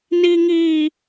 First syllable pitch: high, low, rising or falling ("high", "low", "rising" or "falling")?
high